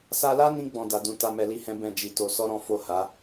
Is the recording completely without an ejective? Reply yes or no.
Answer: yes